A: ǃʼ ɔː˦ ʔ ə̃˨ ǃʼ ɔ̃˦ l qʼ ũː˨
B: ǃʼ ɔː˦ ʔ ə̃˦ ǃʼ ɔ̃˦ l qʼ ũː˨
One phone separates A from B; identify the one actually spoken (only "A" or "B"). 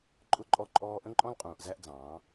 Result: B